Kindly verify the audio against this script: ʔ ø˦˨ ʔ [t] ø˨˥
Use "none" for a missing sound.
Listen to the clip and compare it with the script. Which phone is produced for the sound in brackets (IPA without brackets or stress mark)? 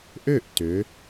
t